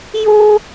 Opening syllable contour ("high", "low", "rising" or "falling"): high